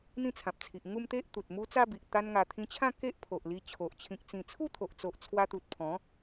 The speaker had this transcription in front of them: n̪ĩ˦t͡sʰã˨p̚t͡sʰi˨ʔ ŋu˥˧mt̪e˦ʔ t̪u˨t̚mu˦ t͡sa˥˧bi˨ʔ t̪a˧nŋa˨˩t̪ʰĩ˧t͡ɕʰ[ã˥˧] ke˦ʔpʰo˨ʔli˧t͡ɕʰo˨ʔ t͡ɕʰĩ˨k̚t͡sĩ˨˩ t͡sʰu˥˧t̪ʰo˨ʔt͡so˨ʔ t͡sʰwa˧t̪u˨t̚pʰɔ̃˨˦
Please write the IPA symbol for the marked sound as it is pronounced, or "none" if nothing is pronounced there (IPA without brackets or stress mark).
ã˥˧